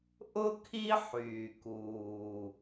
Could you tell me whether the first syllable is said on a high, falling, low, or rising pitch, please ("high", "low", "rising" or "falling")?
high